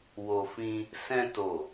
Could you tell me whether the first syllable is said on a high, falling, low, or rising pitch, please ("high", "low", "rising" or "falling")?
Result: low